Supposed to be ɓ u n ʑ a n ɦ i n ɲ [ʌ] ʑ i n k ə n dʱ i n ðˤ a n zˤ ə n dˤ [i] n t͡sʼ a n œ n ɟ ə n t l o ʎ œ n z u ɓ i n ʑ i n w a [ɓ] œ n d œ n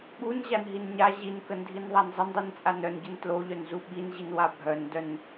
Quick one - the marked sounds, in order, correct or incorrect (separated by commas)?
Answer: incorrect, correct, incorrect